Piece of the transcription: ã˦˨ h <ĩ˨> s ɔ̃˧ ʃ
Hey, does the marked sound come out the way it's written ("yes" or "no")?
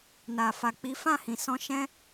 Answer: yes